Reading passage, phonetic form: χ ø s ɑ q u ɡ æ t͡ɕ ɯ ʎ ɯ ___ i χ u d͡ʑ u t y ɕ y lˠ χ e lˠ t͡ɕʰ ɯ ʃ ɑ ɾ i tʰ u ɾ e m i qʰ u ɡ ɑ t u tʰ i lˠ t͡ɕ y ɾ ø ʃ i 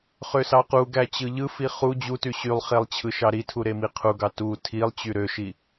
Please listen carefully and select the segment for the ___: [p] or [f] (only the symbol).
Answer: f